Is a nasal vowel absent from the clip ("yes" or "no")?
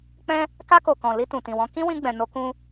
no